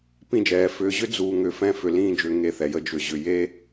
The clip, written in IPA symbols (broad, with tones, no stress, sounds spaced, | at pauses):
p ĩ˥˧ d͡ʒ ɛː˩˧ f ʏː˧ ʑ ʏ˥ d͡z uː˧ ŋ ʏ˧˩ f ɛ̃˥˧ f ʏ˧˩ l ĩː˥˧ d͡ʒ ʏː˧ ŋ e˧ θ ɛ˩˧ j ə˧ d͡ʒ ʏ˧˩ ʑ ʏ˧ j e˥